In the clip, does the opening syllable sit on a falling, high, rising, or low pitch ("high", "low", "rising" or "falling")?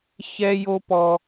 high